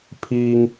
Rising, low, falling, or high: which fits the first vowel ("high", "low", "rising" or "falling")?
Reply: low